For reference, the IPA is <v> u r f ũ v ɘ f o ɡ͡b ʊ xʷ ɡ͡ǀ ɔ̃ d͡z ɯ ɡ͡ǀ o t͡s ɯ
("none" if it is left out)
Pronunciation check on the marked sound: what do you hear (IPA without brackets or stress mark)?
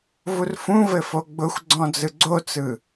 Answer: v